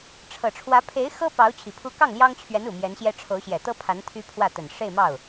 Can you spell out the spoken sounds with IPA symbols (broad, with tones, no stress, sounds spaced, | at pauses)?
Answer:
ʈ͡ʂʰ ɤ˨˩ ʈ͡ʂʰ w ä˧˥ pʰ e˧˥ ɪ̯ x ɤ˥ p ɑ˧˥ ʊ̯ t͡ɕʰ i˨˩ pʰ u˥ k ɑ˥˩ ŋ l j ɑ˥ ŋ t͡ɕʰ ɥ ɛ˧˥ n u˨˩ m j ɛ˧˥ n ɕ j ɛ˥ ʈ͡ʂʰ o˧˥ ʊ̯ ɕ j ɛ˨˩ t̪ ɤ˥ pʰ a˧˥ n t̪ʰ y˥ pʰ w ä˥˩ t̪ ə˨˩ n ʂ e˥˧ ɪ̯ m ɑ˥˩ ʊ̯